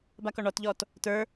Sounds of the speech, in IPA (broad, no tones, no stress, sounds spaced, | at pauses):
b a k ɔ ɳ ɔ t ʎ ɔː t | t ə˞